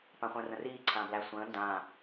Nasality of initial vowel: nasal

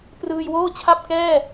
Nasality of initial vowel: oral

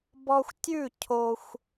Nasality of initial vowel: oral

